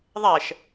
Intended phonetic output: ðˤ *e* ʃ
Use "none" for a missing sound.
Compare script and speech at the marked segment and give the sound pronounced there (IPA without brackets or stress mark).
ɛ